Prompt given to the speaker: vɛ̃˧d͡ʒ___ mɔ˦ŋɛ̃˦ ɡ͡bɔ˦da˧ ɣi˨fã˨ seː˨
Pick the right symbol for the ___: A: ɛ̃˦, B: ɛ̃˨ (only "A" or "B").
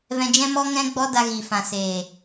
A